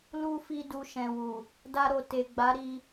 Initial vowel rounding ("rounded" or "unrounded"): rounded